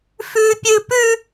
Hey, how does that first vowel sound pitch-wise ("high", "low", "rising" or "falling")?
high